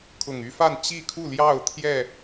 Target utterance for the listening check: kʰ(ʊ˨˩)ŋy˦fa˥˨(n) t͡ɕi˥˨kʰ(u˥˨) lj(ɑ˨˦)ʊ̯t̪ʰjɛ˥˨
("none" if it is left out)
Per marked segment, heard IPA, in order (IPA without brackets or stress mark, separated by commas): ʊ˨˩, n, u˥˨, ɑ˥˨